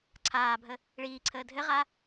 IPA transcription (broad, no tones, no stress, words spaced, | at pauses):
ǀʰaːbʱə | ɭiːǀʰəː dʱɘʁa